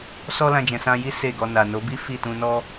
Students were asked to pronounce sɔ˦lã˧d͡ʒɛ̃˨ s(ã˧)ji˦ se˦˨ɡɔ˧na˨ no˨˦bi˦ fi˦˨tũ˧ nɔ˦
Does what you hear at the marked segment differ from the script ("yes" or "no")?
no